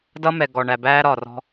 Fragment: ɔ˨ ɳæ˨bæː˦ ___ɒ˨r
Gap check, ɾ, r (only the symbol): ɾ